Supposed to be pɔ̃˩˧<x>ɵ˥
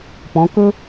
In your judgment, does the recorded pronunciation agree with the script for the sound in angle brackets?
no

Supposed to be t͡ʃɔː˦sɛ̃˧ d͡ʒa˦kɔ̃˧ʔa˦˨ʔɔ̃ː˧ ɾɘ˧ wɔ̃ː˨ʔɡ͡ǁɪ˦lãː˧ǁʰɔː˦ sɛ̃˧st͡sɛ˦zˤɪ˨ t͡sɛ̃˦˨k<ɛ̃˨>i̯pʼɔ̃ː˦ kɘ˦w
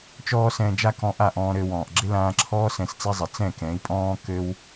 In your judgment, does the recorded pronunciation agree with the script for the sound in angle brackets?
no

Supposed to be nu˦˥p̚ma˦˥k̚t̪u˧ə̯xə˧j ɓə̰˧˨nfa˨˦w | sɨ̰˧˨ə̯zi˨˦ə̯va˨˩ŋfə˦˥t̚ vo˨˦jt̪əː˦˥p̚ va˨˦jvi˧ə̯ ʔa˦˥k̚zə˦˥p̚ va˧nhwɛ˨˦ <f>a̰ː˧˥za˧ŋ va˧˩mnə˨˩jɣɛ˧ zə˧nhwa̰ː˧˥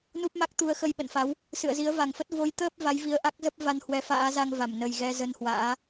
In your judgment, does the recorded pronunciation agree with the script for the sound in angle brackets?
yes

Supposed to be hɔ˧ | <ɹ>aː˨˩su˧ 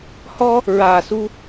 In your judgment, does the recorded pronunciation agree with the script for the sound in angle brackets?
yes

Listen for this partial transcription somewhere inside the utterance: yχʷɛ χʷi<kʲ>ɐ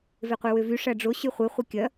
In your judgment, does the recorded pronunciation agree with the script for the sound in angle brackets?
yes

